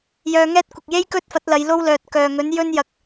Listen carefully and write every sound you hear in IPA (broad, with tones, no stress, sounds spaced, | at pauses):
j œː˧ ŋ ɛː˥ t̚ kʷ ɪ˨ k̚ j e˥ j k ɵ˥ t̚ f ɐ˨˥ t̚ l ɐ˨˧ j l o˥ w l œː˨ t̚ k œː˨ ŋ ɵ˨˥ n j ɵ˥ n j ɐ˨ k̚